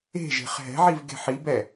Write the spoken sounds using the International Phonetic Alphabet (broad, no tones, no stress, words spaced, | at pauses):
e̤ʒe̤χ ɦɛ̤ʕiv ɡe̤ħibɛ